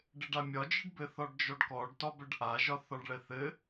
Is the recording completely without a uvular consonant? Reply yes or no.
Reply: yes